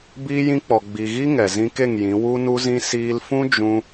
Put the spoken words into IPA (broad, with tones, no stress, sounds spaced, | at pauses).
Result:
b iː˧ j ĩ˧ k͡p ɔ˨ ɡ͡b i˨ ɣ i˦ ŋ ɛ˨ z ĩ˧ k e˦˨ ŋ j ĩ˨˦ w u˦ n u˦ z ĩ˦ s iː˧ l f ũ˦ d͡ʒ ũ˦